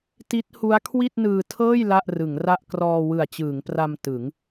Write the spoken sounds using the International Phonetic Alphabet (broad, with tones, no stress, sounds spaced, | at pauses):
t i˦˥ t̚ h u˦˥ a̯ kʰ w i˥˩ t̚ n ɯː˧ tʰ ɤː˥˩ j l a˥˩ ʔ r ɯ˩˦ ŋ r a˥˩ ʔ k r ɔː˧ w ɯ˨˩ a̯ t͡ɕ ɯː˩˦ ŋ p r a˧ m t ɯ˩˦ ŋ